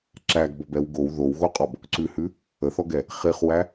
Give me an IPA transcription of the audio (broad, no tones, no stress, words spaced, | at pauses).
ǁæɡbɔbɛw ɡow ðowɣoqʼɔb | ǀʉhʉ | əθɔɡɛ | χiχwæ